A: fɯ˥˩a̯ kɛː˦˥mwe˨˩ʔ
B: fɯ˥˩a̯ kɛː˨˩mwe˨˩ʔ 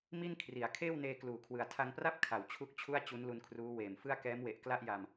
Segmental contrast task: A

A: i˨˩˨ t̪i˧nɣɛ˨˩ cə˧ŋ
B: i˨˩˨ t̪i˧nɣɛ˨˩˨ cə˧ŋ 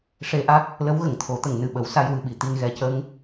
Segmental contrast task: A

